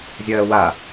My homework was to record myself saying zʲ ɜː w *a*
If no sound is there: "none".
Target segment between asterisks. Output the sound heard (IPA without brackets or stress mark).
a